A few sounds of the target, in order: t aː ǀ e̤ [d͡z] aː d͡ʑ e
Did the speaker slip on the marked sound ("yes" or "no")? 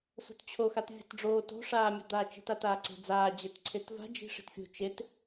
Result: no